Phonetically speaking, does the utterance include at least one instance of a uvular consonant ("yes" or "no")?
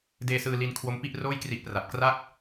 no